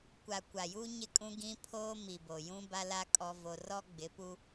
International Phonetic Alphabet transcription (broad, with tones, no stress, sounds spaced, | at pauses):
kʷ a˨ kʷ a˨ j uː˦ ɲ ɪ˦˨ kʼ ũ˦ ɡ ĩ˦ pʰ oː˦ m i˨ b o˨ j ũ˦ b a˦ l a˦ kʼ ɔ˦ v o˦ r ɔ˦ ɡ͡b ɪ˨˦ p u˦